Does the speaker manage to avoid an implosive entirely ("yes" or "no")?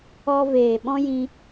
no